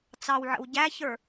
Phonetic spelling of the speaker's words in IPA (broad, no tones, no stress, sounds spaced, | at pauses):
t͡s ɑ w ʕ ə̰ w ɟ æ ç ə˞